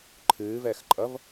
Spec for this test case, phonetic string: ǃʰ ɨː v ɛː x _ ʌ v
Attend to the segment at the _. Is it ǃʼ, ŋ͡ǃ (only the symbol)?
ǃʼ